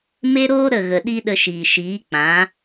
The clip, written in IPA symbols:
m e˦ ɾ oː˦ ɾ ə˦˨ ɣ ə˨ ɗ i˦ ɗ ə˧ ʃ iː˨ ʃ iː˨˦ k͡p ã˨˦

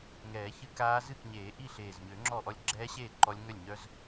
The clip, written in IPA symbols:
ŋ ɛː˨˩˦ ç ɨː˦˥ k aː˦˥ z ɨ˥˩ k ɲ eː˨˩˦ ʔ i˥˩ ɬ eː˨˩ z ɲ ø˨˩˦ ŋ͡ǁ ɔː˥˩ ʔ ɔ˦˥ lʲ ɡ͡ǁ ɛː˦˥ ɕ eː˥˩ ǃ ɔ˦˥ lʲ ŋ œ˥˩ lʲ ɲ œ˦˥ z

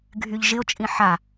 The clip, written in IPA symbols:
ɡʱ y ʎ ʒ ɪ o̯ t͡ʃʼ ĩ ħ a

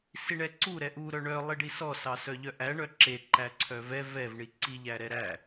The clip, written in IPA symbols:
s i ɳ ɛ ǀ u ɾ ɛ ʔ u ɾ œ ɳ œ lˠ i ɖ i s ɔ s ɑ s œ ʎ œ ʔ æ ɳ œ ǁ e ǃ æ ǀʰ œ v ɛ v ɛ v ɳ i ǀ i ʎ æ ɾ ɛ ɾ æ

